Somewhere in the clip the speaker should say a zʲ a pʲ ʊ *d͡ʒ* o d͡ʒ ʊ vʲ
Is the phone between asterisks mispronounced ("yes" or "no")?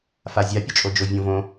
yes